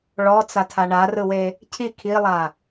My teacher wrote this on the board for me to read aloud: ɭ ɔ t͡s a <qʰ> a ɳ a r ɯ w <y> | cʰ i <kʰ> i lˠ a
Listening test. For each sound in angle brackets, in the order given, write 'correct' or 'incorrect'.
incorrect: tʰ, incorrect: e, correct

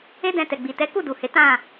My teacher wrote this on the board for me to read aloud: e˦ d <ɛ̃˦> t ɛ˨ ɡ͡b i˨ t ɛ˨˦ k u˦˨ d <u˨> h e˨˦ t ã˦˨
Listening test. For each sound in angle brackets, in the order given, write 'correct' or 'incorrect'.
incorrect: ɛ̃˧, correct

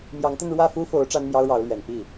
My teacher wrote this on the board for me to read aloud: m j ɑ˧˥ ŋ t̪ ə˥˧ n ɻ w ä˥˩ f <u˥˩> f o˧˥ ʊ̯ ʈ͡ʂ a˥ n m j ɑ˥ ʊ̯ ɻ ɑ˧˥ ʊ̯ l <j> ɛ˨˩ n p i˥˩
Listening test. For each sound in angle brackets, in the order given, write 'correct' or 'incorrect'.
incorrect: u˥, incorrect: ɥ

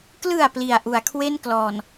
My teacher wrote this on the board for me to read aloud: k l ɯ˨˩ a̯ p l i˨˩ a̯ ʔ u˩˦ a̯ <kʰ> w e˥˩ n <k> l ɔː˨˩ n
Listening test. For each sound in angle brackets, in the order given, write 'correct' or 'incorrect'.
correct, correct

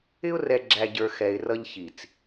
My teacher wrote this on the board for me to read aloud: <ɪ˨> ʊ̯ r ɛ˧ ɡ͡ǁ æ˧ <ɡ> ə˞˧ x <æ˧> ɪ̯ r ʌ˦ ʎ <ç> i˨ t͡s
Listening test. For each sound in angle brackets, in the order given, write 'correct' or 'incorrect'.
incorrect: ɪ˦, incorrect: ɟ, incorrect: ɛ˧, correct

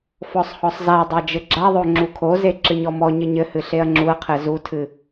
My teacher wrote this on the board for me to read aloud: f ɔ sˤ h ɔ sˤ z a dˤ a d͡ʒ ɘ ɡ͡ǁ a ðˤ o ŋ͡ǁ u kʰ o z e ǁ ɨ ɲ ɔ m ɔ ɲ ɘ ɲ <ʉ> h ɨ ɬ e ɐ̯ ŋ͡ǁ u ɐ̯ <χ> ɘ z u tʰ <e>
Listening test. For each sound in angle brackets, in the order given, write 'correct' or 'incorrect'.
incorrect: ɘ, incorrect: qʰ, incorrect: ɨ

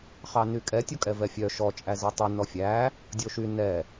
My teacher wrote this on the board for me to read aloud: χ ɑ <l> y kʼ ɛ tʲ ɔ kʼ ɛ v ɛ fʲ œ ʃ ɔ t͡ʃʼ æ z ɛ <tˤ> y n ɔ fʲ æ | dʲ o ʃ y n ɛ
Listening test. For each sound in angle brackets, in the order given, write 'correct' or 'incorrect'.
incorrect: n, correct

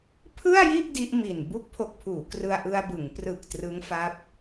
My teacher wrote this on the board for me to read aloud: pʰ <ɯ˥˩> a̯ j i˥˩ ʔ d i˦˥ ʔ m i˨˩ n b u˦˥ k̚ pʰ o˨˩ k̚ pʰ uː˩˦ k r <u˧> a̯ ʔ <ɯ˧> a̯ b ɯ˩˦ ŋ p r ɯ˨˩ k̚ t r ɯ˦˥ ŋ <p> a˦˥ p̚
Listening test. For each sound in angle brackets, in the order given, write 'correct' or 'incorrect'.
correct, incorrect: ɯ˧, correct, incorrect: f

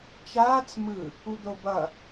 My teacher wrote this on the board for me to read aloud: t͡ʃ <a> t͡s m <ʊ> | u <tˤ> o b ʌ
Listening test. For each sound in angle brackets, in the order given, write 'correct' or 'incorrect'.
incorrect: aː, incorrect: ɯ, incorrect: d̪

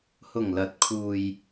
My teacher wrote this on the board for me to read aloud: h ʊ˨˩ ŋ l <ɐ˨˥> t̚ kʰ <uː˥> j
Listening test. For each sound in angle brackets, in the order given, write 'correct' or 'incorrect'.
correct, incorrect: uː˨

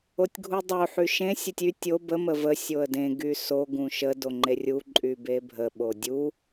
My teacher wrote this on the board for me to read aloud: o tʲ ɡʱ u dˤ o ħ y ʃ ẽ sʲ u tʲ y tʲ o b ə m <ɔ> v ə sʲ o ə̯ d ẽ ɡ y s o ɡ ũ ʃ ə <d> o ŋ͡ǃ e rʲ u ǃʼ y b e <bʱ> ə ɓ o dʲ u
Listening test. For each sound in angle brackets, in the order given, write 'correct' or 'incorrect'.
incorrect: ə, correct, correct

